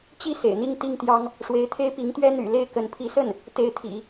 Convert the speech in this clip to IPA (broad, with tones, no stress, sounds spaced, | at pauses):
t͡ɕ i˥˩ s ḛ˨˩ ɪ̯ n̪ i˥˧ ŋ t̪ i˥˩ ŋ t̪ j ɑ˥ ŋ | ʂ w e˧˥ ɪ̯ t̪ʰ e˥ ɪ̯ p i˧˥ ŋ t̪ ɥ ɛ˥ n̪ y̰˨˩ l e˥ ɪ̯ k ə˧˥ n pʰ i˧˥ s ə˥˩ n | t̪ e˧˥ ɪ̯ t̪ʰ ḭ˨˩˦